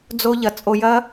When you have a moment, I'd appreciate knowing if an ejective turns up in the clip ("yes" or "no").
yes